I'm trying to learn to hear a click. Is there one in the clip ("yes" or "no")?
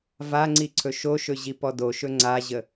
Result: yes